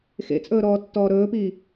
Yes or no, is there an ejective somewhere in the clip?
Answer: yes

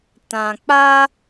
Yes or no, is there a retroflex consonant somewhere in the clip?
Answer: no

